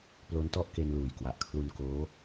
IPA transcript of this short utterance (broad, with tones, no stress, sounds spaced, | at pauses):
p l o˦˥ n t ɔ˥˩ ʔ k e˧ n l uː˨˩ j k w a˨˩ ʔ kʰ l u˧ n k oː˦˥